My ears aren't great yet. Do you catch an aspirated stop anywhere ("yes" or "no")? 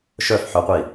no